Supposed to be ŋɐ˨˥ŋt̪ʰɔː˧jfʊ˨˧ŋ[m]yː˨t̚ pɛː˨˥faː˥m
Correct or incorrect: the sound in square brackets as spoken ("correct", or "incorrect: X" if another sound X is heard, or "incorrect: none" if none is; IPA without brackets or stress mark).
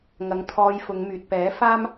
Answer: correct